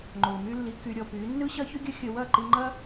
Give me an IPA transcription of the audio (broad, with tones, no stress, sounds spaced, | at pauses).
ŋ͡ǃ o˨ m y˦ lː i˧ k y˧ ɾʲ ɔ˧ p y˨˦ nː ɯ˦ ɕ ɐ˦ ç ʏ˦ ɡʲ ə˦ xʲ ə˧ w ɐ˦˨ ǃ i˧ ŋ͡ǃ ɐ˦